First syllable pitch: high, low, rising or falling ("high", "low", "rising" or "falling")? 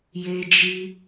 high